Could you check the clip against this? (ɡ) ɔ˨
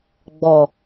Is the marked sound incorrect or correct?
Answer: incorrect